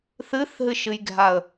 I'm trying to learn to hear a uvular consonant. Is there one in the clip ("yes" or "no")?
no